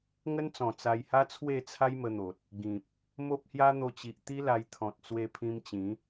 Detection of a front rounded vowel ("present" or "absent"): absent